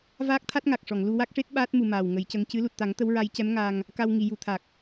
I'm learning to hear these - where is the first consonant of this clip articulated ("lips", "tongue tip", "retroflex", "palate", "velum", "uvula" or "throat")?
lips